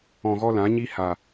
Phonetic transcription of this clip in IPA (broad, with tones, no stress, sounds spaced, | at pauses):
ɔ̃˧ ɣ ɔ˦ l ã˨˦ ɲ i˦ h a˨